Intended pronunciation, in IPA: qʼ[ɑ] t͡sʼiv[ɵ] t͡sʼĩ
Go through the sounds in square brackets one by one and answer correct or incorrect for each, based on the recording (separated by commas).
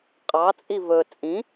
correct, correct